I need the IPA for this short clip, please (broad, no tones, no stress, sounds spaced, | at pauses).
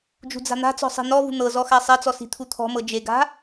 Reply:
d͡ʒ ṳ d͡z a̤ n̪ a̤ t͡s ɔ̤ sˤ i̤ n̪ ɔ v ṳ n̪ ɤ z ɔ x a sˤ ɛ t͡s ɔ s i̤ t̪ʰ u t̪ʰ ɔ̤ m ɤ d͡ʒ e ɡ a̤